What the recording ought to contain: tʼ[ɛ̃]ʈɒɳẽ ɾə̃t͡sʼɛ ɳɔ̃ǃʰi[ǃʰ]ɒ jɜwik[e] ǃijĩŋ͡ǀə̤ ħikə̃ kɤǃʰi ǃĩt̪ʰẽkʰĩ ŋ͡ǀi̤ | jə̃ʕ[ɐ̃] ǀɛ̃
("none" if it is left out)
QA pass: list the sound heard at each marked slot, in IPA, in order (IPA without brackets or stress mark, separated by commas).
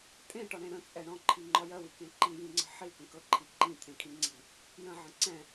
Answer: ẽ, ŋ͡ǃ, ẽ, ə̃